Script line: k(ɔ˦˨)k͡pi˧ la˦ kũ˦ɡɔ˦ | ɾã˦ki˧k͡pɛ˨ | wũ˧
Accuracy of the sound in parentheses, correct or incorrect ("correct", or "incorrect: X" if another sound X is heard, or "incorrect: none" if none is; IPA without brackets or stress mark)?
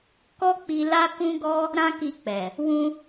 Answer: incorrect: ɔ˦